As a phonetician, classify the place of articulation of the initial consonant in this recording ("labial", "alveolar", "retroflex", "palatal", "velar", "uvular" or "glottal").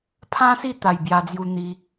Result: labial